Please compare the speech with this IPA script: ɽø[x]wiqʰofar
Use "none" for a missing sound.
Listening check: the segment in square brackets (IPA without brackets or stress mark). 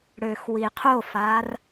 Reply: x